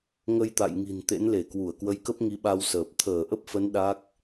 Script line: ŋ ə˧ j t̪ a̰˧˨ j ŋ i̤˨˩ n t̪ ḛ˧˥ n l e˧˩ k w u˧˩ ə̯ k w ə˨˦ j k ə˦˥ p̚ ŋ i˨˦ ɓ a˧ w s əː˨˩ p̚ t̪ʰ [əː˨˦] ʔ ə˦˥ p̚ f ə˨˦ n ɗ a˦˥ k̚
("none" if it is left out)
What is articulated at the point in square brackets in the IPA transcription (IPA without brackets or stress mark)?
əː˧˩